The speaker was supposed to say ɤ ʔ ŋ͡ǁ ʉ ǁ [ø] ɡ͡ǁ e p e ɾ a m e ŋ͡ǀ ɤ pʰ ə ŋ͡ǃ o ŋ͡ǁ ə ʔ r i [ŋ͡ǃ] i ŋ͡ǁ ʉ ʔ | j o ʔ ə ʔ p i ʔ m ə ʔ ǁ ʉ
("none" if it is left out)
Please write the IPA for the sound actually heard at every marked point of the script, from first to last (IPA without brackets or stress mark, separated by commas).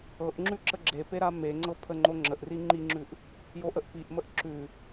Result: ə, ŋ͡ǃ